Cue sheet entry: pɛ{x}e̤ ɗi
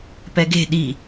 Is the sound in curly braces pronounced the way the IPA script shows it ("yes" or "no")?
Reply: no